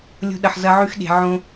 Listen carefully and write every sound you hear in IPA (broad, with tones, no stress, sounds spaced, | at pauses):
lʲ o̤˧ ɗ ɐ˨ ħ z ɐ˧ ʕ ʉ˧ x ɗ e̤˨ ʕ õ˧